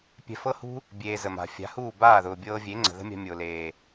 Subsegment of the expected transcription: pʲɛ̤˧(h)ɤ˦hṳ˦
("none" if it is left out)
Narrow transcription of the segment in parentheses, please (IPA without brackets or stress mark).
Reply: f